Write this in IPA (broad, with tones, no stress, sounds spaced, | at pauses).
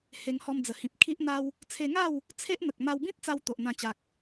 h e˧ ŋ h ɔ˧ m d͡z ə˨˩ h ĩ˨ p̚ kʰ i˦ ʔ n̪ a˦ w | t͡sʰ e˧ ŋ a˥˧ w | t͡sʰ e˦ ʔ n̪ ə˨ k̚ m a˧ w b ĩ˦ t̚ t͡s a˧ w t̪ o˨ ʔ n̪ ã˧ t͡ɕ a˨ k̚